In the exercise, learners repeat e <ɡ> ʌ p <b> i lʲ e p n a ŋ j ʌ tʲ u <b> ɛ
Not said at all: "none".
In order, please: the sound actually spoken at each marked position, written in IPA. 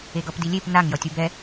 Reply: ɡ, d, b

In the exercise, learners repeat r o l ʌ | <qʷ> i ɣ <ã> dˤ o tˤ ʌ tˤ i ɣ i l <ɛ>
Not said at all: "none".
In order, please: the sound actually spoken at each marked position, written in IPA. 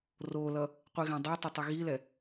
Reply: qʷ, ã, ɛ

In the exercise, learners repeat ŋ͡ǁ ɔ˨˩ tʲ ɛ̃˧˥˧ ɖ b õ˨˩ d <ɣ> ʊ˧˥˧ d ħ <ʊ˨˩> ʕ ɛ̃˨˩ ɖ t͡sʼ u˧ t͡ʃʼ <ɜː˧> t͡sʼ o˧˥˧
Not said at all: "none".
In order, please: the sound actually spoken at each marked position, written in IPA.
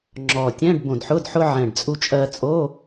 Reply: ħ, ʊ˧, ɜː˧

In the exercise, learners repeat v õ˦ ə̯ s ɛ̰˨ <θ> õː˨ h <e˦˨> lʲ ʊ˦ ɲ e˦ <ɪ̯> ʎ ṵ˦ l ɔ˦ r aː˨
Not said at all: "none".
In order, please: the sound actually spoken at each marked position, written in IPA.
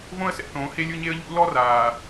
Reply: θ, e˦, ə̯

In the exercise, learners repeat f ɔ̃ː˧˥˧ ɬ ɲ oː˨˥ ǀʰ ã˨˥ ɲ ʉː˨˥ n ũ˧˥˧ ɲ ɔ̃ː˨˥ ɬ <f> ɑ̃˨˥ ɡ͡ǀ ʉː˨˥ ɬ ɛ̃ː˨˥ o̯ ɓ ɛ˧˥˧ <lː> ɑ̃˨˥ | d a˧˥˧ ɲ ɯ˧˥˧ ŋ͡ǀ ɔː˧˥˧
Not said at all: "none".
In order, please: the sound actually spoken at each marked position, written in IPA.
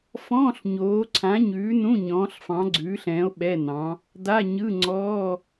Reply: f, n

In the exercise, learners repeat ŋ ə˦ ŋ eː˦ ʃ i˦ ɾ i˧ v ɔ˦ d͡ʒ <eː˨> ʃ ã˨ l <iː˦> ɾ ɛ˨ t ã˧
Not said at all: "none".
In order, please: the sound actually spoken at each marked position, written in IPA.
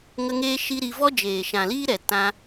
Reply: eː˨, iː˦

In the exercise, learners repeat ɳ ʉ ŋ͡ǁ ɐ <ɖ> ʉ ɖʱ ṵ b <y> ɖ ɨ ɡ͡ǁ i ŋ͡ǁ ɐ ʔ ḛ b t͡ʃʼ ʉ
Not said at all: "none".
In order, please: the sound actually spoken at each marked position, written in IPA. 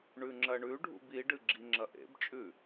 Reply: ɳ, i

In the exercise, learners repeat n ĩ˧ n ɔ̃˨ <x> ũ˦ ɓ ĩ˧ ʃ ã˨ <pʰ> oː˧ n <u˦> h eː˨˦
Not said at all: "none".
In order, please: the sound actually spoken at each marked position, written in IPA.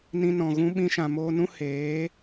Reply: ɣ, m, ũ˦

